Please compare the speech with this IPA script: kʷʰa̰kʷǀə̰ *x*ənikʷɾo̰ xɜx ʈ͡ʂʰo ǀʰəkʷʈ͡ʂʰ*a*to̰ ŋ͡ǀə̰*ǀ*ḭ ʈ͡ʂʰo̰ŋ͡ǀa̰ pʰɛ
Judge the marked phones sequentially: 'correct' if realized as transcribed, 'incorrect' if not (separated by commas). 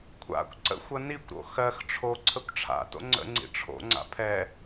incorrect, incorrect, incorrect